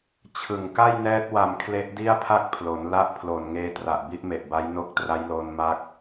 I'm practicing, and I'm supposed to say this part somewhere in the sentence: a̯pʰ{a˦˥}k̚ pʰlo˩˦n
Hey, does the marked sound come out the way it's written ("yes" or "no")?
no